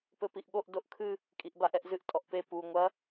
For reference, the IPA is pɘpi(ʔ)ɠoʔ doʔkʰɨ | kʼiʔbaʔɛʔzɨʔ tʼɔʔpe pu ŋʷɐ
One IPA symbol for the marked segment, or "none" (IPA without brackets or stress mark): ʔ